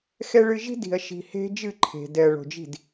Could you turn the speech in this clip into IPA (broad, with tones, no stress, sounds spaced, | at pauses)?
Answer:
x ɛ˦ ɭ ɨ˦ ʒ i̤˦ d i̤˨ ɐ̯ ʃ i̤˨ h e̤˦ d͡ʒ ɨ˦˨ ǃʰ e̤˨ d ɛ˨ ɐ̯ ɭ o̤˨ d͡ʒ i̤˦˨ d